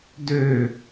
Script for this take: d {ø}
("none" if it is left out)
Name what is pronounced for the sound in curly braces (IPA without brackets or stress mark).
ø